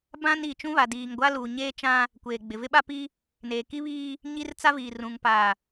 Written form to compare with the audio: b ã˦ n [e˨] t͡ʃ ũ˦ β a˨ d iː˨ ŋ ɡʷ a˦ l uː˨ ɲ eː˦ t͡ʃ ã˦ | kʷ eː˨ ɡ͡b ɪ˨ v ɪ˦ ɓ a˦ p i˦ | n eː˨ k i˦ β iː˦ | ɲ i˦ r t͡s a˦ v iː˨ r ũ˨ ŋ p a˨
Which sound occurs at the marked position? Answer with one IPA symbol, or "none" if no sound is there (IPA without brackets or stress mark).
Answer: i˨